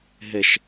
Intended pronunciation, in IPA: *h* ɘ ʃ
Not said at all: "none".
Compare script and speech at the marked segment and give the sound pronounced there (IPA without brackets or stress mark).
ɦ